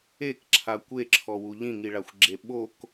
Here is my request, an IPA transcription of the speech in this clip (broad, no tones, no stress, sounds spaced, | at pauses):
e k ǁʰ a kʷ e ǁʰ ɔ w u ʎ ĩ ŋ i ɭ a xʷ ɡ͡ǁ e ɓ o k